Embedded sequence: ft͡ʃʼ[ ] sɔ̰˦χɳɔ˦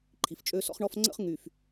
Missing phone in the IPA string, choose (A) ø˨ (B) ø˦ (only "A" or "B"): B